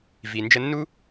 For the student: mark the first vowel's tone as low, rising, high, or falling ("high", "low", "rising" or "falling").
low